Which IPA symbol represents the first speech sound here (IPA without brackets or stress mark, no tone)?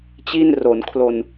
t͡ɕ